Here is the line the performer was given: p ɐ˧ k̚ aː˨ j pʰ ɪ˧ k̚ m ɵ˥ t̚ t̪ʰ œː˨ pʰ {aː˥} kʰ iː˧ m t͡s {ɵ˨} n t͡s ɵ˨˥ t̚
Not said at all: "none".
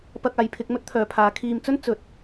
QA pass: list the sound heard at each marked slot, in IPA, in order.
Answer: aː˨˧, ɵ˥

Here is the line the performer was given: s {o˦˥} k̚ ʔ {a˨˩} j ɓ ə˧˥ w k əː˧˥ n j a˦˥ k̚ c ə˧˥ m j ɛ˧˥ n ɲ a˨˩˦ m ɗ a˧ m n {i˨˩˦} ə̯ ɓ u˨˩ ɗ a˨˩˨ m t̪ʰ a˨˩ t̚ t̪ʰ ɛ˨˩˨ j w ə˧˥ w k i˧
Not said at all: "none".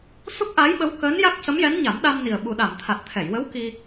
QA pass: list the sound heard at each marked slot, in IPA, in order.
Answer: u˦˥, a˧˥, i˨˩

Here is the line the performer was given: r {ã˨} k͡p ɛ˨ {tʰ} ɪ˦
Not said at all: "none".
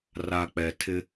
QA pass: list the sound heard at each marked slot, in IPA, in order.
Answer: a˨, tʰ

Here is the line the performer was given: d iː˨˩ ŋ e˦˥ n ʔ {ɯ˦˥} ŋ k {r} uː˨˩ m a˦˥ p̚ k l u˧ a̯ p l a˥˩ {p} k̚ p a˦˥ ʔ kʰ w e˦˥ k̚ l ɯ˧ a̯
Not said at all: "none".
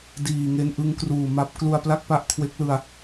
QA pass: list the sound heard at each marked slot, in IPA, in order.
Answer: ɯ˦˥, r, none

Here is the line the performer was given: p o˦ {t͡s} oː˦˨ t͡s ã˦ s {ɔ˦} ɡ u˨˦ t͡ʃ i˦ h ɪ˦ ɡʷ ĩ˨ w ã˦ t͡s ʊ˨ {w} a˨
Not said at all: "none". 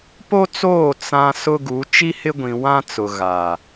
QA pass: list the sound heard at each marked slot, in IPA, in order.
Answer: t͡s, ʊ˦, ɣ

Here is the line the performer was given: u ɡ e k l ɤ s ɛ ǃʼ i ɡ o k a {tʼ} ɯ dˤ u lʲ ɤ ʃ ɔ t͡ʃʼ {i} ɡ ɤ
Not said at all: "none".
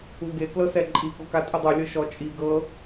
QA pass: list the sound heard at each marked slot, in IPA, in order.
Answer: tʼ, i

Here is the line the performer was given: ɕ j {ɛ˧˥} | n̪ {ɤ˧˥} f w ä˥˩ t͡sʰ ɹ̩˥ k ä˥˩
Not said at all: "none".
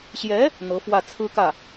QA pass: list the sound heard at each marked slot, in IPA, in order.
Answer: ɛ˧˥, ɤ˧˥

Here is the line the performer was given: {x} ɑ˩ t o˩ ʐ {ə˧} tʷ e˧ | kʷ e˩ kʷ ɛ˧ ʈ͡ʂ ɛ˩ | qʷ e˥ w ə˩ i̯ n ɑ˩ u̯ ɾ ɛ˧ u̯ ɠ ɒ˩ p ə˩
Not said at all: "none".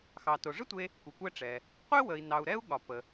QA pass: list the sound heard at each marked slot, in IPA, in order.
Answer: x, ə˥

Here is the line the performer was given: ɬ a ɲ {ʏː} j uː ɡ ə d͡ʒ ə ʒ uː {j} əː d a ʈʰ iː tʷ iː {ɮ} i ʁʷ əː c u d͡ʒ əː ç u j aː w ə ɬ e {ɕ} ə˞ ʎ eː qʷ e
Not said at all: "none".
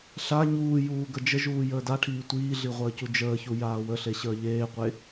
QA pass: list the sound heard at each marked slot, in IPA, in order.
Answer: uː, j, ɮ, ɕ

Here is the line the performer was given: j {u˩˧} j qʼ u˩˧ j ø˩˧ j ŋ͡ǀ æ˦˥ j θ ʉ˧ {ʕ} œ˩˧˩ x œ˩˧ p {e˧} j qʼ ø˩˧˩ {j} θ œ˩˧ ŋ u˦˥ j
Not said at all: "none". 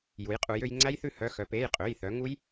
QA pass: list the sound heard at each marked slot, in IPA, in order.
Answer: u˩˧, h, e˩˧˩, j

